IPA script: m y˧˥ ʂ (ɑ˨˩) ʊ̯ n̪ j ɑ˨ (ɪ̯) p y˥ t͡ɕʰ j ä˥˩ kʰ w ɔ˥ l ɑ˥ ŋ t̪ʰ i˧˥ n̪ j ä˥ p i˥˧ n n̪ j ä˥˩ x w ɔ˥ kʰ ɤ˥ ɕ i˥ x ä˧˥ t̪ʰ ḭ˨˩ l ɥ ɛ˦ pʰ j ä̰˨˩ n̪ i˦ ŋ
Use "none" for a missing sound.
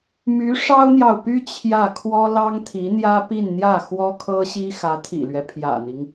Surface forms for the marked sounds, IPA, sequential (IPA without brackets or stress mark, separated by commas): ɑ˥, ʊ̯